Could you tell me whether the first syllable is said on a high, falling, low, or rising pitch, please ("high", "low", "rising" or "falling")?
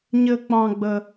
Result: high